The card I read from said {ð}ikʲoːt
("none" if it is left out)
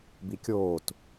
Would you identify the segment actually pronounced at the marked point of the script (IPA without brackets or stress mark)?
b